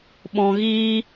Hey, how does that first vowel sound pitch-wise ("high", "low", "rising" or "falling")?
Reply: low